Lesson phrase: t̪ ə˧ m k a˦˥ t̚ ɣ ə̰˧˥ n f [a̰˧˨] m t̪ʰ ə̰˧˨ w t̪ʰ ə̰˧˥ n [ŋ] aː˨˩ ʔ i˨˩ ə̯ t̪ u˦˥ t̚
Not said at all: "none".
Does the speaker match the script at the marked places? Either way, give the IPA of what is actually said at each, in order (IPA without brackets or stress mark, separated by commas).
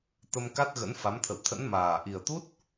a˨˦, m